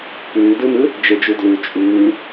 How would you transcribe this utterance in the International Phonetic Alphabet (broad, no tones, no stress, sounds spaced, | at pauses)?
p ʉː d ɯ m ɯ | d͡ʒ e d͡ʒ u d l ʉ t͡ʃʼ ʉː